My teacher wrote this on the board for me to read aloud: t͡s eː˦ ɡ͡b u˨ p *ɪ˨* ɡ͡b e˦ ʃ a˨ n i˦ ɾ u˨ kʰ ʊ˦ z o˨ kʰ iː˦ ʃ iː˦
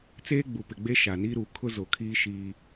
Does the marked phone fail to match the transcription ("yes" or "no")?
no